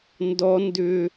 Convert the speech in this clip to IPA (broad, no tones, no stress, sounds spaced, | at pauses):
n d ɔ n d ʏ